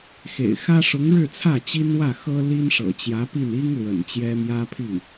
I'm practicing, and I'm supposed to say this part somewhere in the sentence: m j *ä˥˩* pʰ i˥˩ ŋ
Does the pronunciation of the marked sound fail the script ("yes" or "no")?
yes